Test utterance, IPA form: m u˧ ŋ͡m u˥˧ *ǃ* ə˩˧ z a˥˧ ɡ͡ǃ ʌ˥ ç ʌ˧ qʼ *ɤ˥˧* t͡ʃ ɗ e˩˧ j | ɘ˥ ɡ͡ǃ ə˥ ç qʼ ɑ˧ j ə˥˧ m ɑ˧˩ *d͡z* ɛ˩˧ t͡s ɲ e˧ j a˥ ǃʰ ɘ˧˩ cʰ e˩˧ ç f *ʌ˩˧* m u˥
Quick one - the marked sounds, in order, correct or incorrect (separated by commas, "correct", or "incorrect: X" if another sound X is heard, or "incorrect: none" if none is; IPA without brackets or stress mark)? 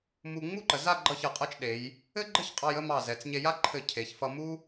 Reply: correct, correct, incorrect: z, incorrect: ʌ˧